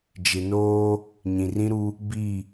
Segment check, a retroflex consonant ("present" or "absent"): absent